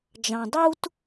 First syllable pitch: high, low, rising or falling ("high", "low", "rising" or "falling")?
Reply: low